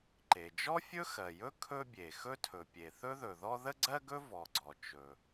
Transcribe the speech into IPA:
ǃ e˩ d͡ʒ ɔ˥ fʲ ɵ˥ x ɜ˩ j ɵ˥ kʰ ɵ˥ bʲ e˩ x ɵ˥ tʰ ɵ˩ pʲ e˩ θ ɵ˥ ð ɵ˩ ð ɔ˥ ð ə˥ ɡ͡ǀ ɜ˥ ɡ ɵ˥ v ɔ˩ ɡ͡ǀ ɔ˩ t͡ʃ ɵ˩

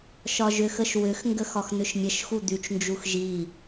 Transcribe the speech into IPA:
ʃ ɒ ʒ ʏ x ə ʃ w ʏ x ŋ ɡ ə x ɒ x n̪ ʏ ʃ mʲ ə ʃ x u d̪ y t͡ʃ n d͡ʒ u x ʒ i

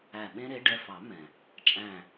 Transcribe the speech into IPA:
æ˧˩ ɓ ẽ˥ ɾ e˨˦ ɖ ɛ˩˧˩ f ɑ˨˩˦ m ɛ̃˩ | t͡ʃʼ æ̃˧˩

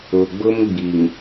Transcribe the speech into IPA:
ʊ˨ ɡ͡b ʊ˦ m ɡ͡b i˨ ŋ

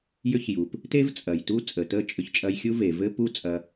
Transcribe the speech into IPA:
j ʏ˦ ç j u˨ p | t e˦ v t͡sʼ ɐ˨ j t u˦ t͡sʼ ə˨ t ə˦ t͡ʃʼ ʏ˧ ç t͡ʃʼ ɐ˧ j xʲ u˦ v e˨ v ɘ˦ p u˦ t͡sʼ ɐ˧

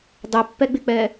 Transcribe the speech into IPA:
dˤ ɛ pː ɛ ɡ͡b ɪ k͡p ɛ

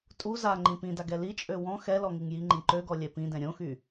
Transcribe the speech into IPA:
tʼ u z a ŋ͡ǃ ĩ p ĩ d a ɡ ɛ l i t͡ʃʼ ø w ɔ̃ x ɛ l ɔ ŋ i ŋ j i ŋ͡ǃ ĩ ǃ ø ɡ ɔ lʲ ɛ p ĩ d ɛ̃ ɾʲ õ x y

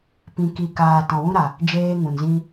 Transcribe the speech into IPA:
p ĩ˨ k i˨ k aː˨ t ɔ̃˨ w ũ˧ ɾ a˨ | d͡ʒ eː˧ ŋ ũ˨ n z ĩ˧

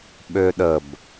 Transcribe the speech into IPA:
ɓ ø ɗ ə b

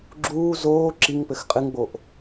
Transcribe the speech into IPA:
ɡ͡ǁ uː z oː ǁ i ŋ p ɘ x qʼ ɨ ŋ ɡ͡b o ʔ

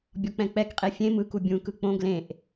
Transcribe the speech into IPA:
bʲ ɔ k͡p ɛ̃ k͡p ɛ k qʼ e fʲ ẽ m ɯ k u bʲ ũ k ɯ k͡p õ ɡ l ẽ ʔ

